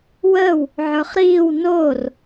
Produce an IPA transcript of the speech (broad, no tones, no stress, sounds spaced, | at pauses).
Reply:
w əː w | ʕ ə˞ χ ɾ iː w n oː r